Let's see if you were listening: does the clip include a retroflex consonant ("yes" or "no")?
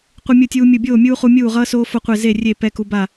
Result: no